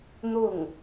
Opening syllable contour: falling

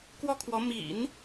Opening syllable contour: high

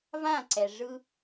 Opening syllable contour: falling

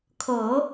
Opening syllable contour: low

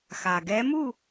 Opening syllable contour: low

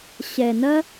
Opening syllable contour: low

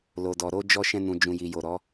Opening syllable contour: low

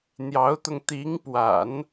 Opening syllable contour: rising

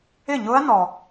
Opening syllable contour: falling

